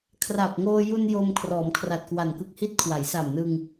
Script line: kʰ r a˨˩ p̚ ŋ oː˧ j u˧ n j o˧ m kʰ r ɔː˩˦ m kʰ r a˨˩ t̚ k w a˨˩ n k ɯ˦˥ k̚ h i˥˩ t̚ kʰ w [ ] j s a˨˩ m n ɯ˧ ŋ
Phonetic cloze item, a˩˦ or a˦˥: a˩˦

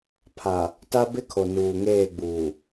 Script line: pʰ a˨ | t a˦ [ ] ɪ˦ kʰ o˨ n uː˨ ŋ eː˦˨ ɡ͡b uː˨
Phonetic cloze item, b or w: b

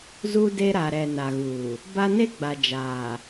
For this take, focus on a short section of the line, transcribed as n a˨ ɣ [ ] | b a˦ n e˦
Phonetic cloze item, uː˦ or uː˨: uː˨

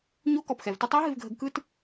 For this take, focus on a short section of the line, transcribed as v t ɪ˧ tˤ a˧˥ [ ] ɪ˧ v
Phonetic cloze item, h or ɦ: ɦ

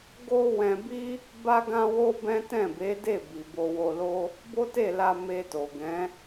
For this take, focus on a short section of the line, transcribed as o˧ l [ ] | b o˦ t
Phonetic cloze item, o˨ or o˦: o˦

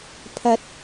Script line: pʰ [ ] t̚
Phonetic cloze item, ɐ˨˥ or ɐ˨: ɐ˨˥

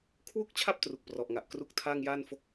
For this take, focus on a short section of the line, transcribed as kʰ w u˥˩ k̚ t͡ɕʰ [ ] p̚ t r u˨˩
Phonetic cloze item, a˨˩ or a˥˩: a˥˩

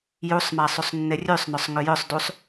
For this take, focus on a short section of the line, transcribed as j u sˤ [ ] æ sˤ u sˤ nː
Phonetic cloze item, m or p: m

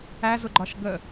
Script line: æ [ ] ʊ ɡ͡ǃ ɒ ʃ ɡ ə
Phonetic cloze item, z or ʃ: z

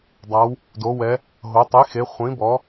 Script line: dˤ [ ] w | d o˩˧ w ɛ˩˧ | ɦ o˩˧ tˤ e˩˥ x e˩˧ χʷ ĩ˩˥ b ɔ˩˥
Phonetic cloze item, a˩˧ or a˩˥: a˩˧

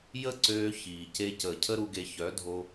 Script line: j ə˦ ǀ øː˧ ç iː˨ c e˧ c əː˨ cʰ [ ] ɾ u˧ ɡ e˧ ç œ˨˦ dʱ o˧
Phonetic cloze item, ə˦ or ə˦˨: ə˦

